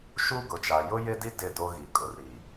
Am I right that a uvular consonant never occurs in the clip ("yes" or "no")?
yes